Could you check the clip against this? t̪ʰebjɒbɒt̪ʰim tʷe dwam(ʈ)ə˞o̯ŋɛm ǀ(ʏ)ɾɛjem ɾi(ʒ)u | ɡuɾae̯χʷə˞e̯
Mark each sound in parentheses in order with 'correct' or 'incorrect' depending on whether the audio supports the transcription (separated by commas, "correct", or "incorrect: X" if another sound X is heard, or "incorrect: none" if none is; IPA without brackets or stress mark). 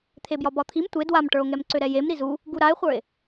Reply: correct, correct, incorrect: z